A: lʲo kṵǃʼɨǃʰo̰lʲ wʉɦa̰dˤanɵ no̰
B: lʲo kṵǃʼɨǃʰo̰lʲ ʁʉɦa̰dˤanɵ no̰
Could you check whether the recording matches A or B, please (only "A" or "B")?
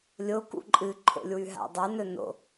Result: A